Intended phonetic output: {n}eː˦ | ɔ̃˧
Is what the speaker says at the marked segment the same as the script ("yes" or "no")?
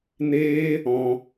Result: yes